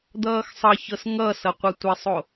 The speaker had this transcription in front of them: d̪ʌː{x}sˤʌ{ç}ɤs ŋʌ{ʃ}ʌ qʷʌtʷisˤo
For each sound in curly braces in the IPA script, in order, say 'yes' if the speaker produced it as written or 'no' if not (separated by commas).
yes, yes, no